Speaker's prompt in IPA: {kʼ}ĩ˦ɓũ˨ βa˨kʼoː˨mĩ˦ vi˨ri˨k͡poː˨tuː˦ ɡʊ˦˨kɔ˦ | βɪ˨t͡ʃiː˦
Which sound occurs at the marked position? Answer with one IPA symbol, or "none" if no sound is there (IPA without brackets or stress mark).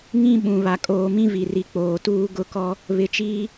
ŋ